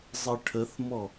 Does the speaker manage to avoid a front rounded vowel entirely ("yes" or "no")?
yes